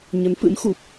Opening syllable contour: rising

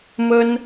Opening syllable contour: high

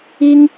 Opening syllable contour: high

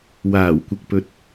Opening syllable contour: low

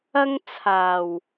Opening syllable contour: high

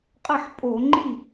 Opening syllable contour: falling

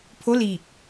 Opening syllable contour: rising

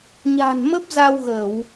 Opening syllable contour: low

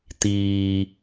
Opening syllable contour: high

